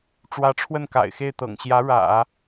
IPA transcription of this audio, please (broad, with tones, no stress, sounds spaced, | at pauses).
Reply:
ʈ͡ʂ w ä˧˥ ʈ͡ʂʰ w ə˥˩ n k a̰˨˩ ɪ̯ x e˥˩ ɪ̯ t̪ ɤ̰˨˩ ŋ ɕ j ä˧˥ ɻ ä̰˨˩˦